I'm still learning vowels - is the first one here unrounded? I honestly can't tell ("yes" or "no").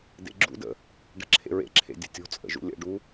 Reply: yes